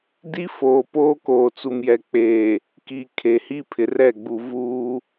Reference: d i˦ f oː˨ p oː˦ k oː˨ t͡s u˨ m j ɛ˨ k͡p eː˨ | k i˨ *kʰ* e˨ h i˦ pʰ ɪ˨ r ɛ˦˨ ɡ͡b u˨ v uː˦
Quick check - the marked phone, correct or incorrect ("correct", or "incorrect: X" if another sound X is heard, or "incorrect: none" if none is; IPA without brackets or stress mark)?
correct